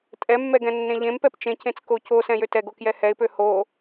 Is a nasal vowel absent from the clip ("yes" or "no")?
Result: no